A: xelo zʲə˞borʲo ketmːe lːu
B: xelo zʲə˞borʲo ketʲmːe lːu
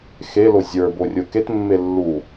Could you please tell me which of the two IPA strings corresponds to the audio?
A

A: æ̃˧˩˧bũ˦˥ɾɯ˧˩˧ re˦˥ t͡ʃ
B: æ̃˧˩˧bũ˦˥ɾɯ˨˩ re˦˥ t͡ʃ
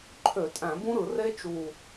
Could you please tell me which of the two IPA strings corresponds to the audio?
A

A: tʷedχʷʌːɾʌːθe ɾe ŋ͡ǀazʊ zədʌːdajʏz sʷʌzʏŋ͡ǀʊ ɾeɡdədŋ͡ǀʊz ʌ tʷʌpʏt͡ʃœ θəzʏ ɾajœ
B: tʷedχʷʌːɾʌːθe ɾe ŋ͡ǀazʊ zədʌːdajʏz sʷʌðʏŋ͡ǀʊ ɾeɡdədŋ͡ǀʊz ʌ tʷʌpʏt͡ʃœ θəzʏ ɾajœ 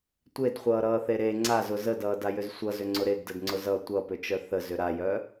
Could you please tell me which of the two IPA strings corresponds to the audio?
A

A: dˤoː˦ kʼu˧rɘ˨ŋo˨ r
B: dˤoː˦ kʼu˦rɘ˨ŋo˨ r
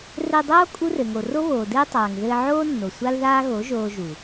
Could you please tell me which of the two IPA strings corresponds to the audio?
B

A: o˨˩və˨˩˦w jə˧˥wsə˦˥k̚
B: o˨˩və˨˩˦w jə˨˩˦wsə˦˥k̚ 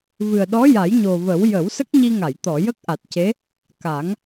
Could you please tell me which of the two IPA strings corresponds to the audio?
B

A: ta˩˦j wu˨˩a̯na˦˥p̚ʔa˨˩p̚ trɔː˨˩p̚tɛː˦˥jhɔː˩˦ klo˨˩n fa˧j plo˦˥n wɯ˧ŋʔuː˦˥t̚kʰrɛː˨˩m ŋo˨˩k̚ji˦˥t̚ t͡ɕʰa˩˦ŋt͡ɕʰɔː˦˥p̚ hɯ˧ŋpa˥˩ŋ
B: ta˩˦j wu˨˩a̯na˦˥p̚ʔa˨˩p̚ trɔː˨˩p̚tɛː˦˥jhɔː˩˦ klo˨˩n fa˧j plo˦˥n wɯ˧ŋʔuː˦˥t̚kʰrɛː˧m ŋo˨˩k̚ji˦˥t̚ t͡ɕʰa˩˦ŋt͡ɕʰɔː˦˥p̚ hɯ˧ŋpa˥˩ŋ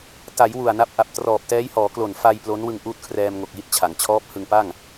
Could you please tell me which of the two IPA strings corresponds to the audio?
B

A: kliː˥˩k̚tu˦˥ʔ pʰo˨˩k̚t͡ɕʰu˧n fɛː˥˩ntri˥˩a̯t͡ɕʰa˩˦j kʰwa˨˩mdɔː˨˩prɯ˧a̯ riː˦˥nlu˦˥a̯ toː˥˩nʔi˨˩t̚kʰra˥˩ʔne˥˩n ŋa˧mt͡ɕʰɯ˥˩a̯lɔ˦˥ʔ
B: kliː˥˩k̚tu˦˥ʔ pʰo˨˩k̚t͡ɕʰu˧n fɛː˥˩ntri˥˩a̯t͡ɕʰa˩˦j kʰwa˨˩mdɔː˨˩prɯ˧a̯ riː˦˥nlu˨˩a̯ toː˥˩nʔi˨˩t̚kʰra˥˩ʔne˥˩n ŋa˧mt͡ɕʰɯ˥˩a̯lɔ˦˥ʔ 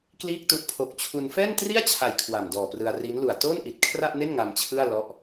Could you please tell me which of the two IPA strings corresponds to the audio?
B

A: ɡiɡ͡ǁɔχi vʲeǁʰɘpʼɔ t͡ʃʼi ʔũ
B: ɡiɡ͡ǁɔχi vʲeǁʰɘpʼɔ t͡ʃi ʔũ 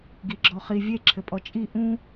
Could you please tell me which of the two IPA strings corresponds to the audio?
A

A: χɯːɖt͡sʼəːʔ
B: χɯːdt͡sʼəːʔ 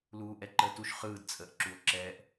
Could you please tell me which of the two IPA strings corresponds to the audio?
B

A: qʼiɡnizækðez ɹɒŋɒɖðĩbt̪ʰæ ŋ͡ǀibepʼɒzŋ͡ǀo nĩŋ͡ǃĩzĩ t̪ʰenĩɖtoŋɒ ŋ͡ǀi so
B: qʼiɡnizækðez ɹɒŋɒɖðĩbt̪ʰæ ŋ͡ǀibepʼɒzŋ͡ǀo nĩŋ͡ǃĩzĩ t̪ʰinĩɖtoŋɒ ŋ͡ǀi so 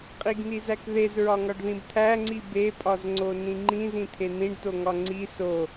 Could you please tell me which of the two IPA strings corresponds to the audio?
A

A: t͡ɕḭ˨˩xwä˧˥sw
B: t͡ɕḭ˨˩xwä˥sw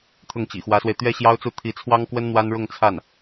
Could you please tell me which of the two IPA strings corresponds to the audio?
A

